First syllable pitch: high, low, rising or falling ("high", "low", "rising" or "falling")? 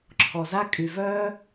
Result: low